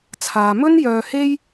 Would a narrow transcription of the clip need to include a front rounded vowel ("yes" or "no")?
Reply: yes